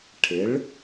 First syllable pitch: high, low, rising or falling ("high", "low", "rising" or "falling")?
rising